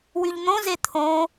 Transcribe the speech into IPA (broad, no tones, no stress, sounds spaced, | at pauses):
w y ʎ n̪ õ z e t̪ʰ õ